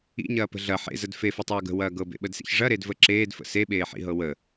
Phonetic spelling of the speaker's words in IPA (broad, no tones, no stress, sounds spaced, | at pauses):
ḭ ɲ ɐː p ə̤ ɮ ɐ ħ ḛ z ə d f e f ɐ tˤ ɤː ɡ ə̤ w ɐː ɡ ɤ b ḛ ɓ ə d s ḭ ç ʐ ɐ ɾ e d v ə ǁ eː d f ə̰ s e ɓ eː ħ ḭ ɦ ɤ w ə